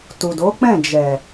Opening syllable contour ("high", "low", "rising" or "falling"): low